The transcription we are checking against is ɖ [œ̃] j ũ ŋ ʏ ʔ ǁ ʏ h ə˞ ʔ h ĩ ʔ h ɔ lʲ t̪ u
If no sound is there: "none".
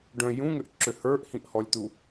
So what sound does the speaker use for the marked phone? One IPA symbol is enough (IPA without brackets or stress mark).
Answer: œ̃